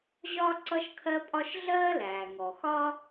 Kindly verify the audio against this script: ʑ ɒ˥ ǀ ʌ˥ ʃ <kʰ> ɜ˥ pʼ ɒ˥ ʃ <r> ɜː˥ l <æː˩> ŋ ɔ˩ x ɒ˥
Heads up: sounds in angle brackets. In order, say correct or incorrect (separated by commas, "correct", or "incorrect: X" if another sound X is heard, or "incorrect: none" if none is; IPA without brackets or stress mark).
correct, incorrect: ɮ, correct